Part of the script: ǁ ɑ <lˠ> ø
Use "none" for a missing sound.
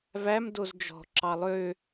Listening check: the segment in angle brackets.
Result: lˠ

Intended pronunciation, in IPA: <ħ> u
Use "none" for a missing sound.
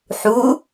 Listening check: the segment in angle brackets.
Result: ħ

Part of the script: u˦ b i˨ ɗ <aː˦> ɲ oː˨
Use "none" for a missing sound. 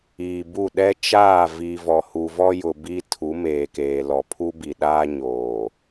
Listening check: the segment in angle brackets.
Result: aː˦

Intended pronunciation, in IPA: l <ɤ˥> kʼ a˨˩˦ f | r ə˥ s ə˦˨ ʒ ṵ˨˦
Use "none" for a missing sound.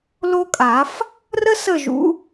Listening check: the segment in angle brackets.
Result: o˥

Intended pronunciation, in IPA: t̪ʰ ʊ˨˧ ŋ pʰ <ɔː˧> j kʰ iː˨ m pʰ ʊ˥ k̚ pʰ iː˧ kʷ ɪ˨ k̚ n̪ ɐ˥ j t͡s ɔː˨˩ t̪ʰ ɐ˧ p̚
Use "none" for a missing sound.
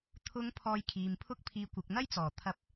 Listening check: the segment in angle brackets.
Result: ɔː˧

